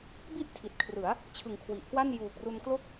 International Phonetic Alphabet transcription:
bi˥˩ʔ tʰi˨˩t̚kʰrɯ˩˦a̯ | t͡ɕʰɯ˩˦ŋ kʰwi˨˩ʔkwa˥˩n juː˨˩k̚ru˧nklo˥˩k̚

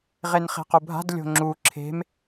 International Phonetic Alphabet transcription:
ʁenχe̤qubʱa̤d lʲo̤ŋ͡ǁu ǁʰe̤m

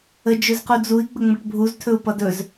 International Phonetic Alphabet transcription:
ə d͡ʒɵzqud͡zui̯ ɡ͡bəŋ͡mʌʈbʱuz tʰɵu̯pʌdɵz

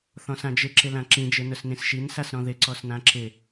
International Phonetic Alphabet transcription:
θɔ̃sãd͡ʒɪ ǁɪlãǁĩ d͡ʒenʊsnĩsʃin sasɾɔ̃ðɪ ǀɔsnãǁɪ

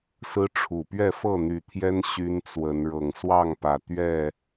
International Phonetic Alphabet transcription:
sɹ̩˦ʈ͡ʂʰu˨˩ pɥɛ˥˨fɤ˥˨n̪y˨˦t̪ʰjɛ˦n ɕy˦nt͡swə˨˦n ɻɤ˨˩ŋswɑ˥˨ŋpä˨˩ t̪ɥɛ˥˨

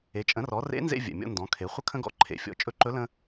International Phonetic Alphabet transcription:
e˩˧t͡ʃʼə̃˩˧rɔ˩˧ rḛ˧˥nzḛ˧vʲɛ̰˩ mʲɔ̰˧ndɔ̃˩˧kʰe˩˧ χʷə˥kʰə̃˥ɡɔ̰˧ ǃʰḛ˩fʲɔ̰˩ t͡ʃʼɵ˧˥ǃɵ˧˥ lə̃˧

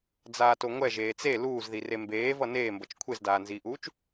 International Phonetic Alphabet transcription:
d͡zaːtoŋʷɛ ʒeːt͡se luːzðire mbeːvʌ neːmbʌt͡ʃ kʷʰezdaːnziːʔuːt͡ʃ

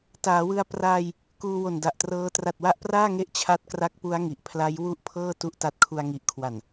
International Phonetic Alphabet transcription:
taː˩˦wɯ˧a̯ praː˧j | kuː˧wo˨˩nda˨˩ʔtrɤː˦˥ tra˨˩t̚wa˦˥ʔpraː˥˩ŋe˦˥ʔ t͡ɕʰa˦˥t̚ kra˦˥k̚pu˦˥a̯ ŋi˨˩ʔpʰla˦˥j wu˥˩ʔpʰɤː˥˩ tu˥˩ʔta˦˥t̚kʰu˧a̯ ŋi˨˩ʔkʰwa˨˩n

